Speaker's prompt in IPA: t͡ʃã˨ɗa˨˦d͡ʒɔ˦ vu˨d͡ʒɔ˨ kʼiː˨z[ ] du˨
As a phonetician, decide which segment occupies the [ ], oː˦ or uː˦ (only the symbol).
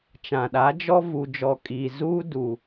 uː˦